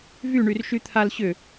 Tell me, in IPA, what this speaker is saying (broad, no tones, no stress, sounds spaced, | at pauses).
v y ɳ y r ʃ y t̪ʰ a l ɕ ʏ